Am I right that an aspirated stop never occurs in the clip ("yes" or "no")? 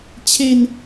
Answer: no